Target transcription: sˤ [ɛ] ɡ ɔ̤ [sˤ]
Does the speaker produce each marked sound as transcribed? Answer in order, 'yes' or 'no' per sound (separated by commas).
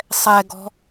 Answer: yes, no